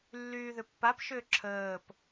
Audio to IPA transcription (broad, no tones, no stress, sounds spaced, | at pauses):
lː yː ð ʏ pː a p ʃ ʏː ǁʰ əː p